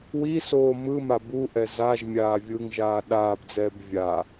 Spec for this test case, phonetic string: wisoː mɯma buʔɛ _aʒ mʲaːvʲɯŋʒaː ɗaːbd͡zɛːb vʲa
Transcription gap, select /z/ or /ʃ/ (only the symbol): z